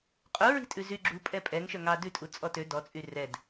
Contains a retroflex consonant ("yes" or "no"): no